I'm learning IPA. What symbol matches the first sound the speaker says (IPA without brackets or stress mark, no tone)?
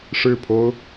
ʂ